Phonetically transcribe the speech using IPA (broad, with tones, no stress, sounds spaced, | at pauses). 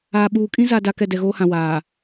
aː˨ ɓ uː˨ kʼ ĩ˦ z a˨ d a˨ k ɛ˦˨ d ɛ˨ ɣ oː˦ h ã˨ w aː˨